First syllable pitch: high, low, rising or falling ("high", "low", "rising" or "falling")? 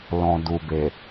low